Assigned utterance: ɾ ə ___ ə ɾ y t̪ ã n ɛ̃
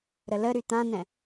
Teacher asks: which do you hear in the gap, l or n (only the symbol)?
l